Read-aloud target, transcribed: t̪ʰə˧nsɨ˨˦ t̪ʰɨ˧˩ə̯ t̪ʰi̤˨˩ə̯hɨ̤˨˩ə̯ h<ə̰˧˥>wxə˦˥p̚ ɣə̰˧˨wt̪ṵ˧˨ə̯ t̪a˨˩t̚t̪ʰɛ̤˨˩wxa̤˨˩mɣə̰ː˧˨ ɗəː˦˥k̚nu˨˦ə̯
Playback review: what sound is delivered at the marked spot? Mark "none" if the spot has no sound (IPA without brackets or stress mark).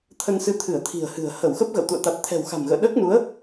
ə˧˩